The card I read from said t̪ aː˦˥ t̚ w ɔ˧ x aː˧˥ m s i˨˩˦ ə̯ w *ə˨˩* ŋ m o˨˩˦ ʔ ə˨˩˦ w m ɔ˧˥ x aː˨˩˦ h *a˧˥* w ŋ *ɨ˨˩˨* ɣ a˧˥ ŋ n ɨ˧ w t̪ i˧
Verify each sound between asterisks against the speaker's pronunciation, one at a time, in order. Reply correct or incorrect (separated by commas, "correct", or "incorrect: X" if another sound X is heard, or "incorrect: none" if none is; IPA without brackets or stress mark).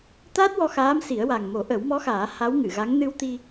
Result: incorrect: a˨˩, correct, correct